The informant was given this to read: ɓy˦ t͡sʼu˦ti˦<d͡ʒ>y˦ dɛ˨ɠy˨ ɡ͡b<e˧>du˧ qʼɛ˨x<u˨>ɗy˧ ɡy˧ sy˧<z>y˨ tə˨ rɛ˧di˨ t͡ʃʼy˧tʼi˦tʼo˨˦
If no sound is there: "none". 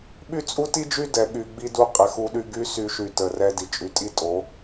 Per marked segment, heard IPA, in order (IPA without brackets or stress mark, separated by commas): d͡ʒ, i˧, u˧, ʃ